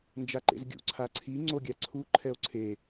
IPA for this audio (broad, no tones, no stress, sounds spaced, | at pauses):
n d͡ʒ a ǃ ḛ z ɡʲ ṵ ǀʰ a ǀʰ i ŋ͡ǀ o ɡʲ a ǀʰ u ǃʰ ɛ o̯ ǀʰ e